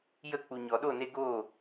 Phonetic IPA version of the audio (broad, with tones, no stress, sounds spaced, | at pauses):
j ə˦˨ k͡p u˨ ɲ ɔ˨ ɗ o˦˨ n e˧ ɡ o˦˨